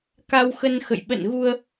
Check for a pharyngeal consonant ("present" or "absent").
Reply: absent